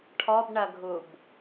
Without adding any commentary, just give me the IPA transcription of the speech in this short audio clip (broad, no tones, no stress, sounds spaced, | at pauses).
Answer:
ʈʰ ɔ b ɳ ɐ ɡʱ u b